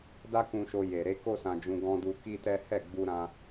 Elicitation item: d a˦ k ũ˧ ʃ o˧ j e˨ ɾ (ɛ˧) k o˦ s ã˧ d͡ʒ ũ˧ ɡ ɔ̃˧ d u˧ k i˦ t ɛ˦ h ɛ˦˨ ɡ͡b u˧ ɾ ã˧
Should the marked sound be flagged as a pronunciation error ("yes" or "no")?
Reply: yes